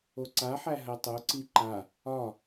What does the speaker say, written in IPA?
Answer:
o ǀ a ħ æ ɦ ɜ tˤ o ǀ i ǃ a | ɒ

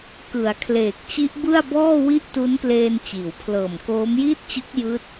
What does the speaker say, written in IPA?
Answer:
k ɯ˩˦ a̯ kʰ l eː˨˩ k̚ t͡ɕ i˦˥ ʔ b ɯ˥˩ a̯ b ɔː˥˩ w i˥˩ ʔ t u˦˥ n p l eː˧ n t͡ɕ iː˩˦ w pʰ l ɤː˨˩ m k oː˦˥ m j iː˥˩ t̚ t͡ɕ ɯ˦˥ k̚ j ɯː˦˥ t̚

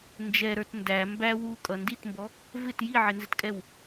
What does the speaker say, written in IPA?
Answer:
n d͡ʒ ɛ ɾ ə˞ t n d æ m b æ w u kʼ ʌ n d i t m b ɔ | v ɪ t j i ʕ ɪ n z ɪ t kʼ ɛ w

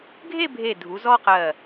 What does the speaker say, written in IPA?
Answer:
ɡʱ e˥˧ bʱ e˧˩ dʱ u˩˧ z ɔ˥ q ɜ˧˩

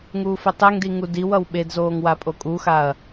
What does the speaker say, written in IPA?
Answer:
ŋ uː f e tˤ e ŋ d i ŋ u d i w ʌ w ɓ e d z oː ŋ w a pʼ o kʼ u x a ɐ̯

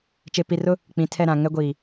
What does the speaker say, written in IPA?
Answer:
t͡ʃ e˨ p i˨ r ʊ˦ | k͡p ĩ˨ tʰ ɛ˦˨ ɾ ã˨ ŋ ɛ˦ ɡʷ iː˨

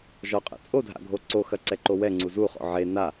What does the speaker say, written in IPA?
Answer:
ʒ ɔ qʼ ḛ t͡sʼ o dʱ a̰ ɡʱ o ǀ o x ɐ ǀ ɛ ǃ o w ɛ ŋ͡ǀ u z u χ ɔ̰ ʕ e n a

